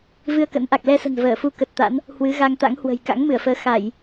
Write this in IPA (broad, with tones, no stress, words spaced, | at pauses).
vɨ˧ə̯kə̰˧˥nʔa˨˩k̚ lɛ˧sə̤˨˩n vəː˧˩fu˧ kə˨˩t̚t̪a̰˧˥n | hwɨ˨˦ ɣa˧ŋt̪a̰˧˥ŋhwə̤˨˩j ka̰˧˥ŋmɨ˧˩ə̯fəː˨˦ xa˧˩˨j